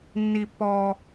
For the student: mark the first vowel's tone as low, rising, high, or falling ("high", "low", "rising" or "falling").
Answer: low